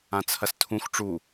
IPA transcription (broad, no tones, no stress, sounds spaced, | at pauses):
ã t͡sʰ ɐ s tʰ ũ x ʈ͡ʂ u